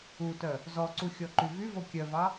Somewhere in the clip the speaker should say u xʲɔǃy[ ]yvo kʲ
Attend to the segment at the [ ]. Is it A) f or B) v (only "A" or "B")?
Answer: B